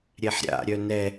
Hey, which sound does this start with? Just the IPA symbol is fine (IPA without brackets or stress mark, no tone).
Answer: ɾʲ